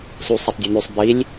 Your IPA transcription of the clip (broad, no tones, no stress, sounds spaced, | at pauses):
s u sˤ o tˤ dʲ ɵ n ʉ sˤ b i lʲ